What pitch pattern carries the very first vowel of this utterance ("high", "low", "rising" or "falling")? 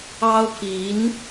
high